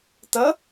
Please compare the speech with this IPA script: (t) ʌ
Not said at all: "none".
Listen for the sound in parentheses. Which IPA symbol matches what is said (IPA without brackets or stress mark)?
t